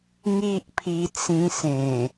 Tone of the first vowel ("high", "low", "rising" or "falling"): high